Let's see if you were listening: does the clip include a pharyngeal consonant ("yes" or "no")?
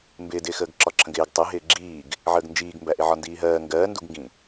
yes